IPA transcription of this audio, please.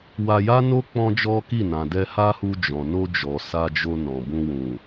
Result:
w a˧ j a˦ n o˦ k͡p ɔ̃˦ d͡ʒ ɔ˦ k i˦˨ n ã˨ d ɛ˧ h a˦ h u˧ d͡ʒ ɔ̃˨ n o˧ d͡ʒ ɔ˨ s a˧ d͡ʒ o˧ n ɔ̃˨ b ũ˧ w ũ˨

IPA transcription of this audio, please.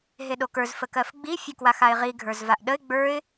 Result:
ɦ e ɗ o k ə˞ z f ə k ɜ f ɡ͡b i fʲ ə k w a x a ɪ̯ ʁ i ɡʱ ə˞ z v a ʔ ɗ ə ɪ̯ ɡ͡b ə˞ ɪ̯

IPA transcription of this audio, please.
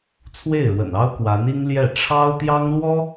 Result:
t͡sʰ w e˥˩ ɪ̯ ɻ w ə̰˨˩ n ɑ˥ ʊ̯ k w a˧˥ n i˥ ŋ l j ɛ˥˩ ʈ͡ʂʰ ɑ˥ ʊ̯ t̪ j ɑ˥ ŋ l w ɔ˥

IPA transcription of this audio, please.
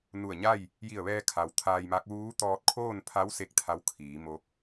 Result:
n u˧˩ ə̯ ɲ a˥˨ j | j i˧˩ ə̯ ʋ ɛː˧ kʰ a˩ w t̪ʰ aː˧ j m a˧˥ k̚ ʋ uː˧˥ t̪ ɔː˧ t̚ kʰ oː˥˨ n pʰ a˧˥ w s e˥˨ k̚ t̪ʰ a˧˥ w kʰ iː˩˧ m o˧˥ k̚

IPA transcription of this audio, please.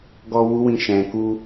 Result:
ɡ ɔ˦ w u˦ w ĩ˦˨ ʃ ɛ̃˧ k u˦

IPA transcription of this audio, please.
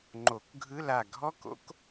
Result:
ŋ͡ǃ o˨˩˦ k ɡʱ ɯ˧˥˧ l a˧˩ ɡʱ ɔ˥ k o̰˥ k

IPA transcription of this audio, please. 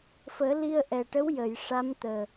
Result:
f əː˨˩˦ l i˧ ə̯ ʔ ɛ˨˩ ʈ ə˧˥ w j ə˨˩˨ j ʂ a˧˥ m t̪ əː˨˩

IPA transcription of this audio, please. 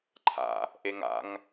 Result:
ǃʰ a̰ | ʔ e ŋ a̰ ŋ

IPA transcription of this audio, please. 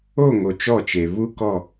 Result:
o˦˨ ŋ o˨ t͡ʃ ɔ˦˨ t͡ʃ e˨ β u˦ k ɔ˦˨

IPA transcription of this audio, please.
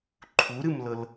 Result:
ǃʰ u ɾ ɨ m l ɤ l

